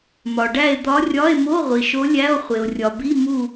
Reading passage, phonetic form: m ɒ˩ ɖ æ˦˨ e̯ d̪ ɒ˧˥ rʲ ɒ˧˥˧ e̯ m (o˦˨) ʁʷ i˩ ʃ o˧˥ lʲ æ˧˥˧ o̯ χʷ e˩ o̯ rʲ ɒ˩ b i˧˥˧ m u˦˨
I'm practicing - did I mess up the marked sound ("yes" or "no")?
yes